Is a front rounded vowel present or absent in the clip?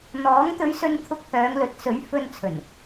present